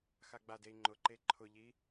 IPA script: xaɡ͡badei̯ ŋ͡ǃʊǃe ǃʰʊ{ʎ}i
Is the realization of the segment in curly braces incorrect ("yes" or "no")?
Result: no